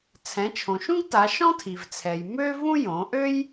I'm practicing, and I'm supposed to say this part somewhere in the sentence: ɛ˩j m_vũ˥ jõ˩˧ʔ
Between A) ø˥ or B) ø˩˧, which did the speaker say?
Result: A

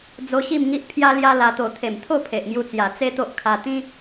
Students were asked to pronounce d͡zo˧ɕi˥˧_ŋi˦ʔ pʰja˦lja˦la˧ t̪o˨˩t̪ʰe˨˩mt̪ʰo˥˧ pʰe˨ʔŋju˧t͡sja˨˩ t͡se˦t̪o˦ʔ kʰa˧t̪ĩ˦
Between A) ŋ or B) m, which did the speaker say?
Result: B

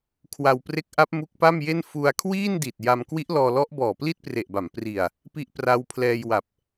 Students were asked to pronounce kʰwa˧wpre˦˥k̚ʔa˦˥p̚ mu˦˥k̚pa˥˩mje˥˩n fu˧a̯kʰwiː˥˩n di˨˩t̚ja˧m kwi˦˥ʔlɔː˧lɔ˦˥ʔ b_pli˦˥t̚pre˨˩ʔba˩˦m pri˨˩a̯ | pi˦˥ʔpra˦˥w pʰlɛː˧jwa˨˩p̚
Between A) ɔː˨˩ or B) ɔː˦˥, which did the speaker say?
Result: A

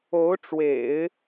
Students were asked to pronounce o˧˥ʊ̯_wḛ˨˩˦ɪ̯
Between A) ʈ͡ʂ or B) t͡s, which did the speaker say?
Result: A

